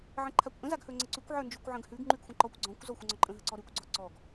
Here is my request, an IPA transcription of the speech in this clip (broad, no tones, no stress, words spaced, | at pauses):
ʕə̃ǃʰakʷʔə̃ zaɡhɵŋ͡ǀəǀʉkʷ ʕə˞nd͡ʒʉkʷʕə̃ɡhʉɡ ŋ͡ǃʉɡxʷə̃ǃɔkʷ ɡ͡ǀɔ̃kʷ zɔxʷə̃ŋ͡ǀɔǃʼə̃ ɦəǀɔɾʉkʷ ɡ͡ǀɔǀɔɡ